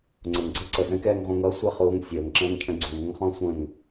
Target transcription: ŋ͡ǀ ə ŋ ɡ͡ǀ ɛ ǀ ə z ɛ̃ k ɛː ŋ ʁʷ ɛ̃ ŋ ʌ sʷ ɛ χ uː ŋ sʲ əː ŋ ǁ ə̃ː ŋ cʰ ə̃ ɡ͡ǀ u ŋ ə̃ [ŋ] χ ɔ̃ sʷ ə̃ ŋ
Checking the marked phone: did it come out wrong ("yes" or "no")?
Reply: no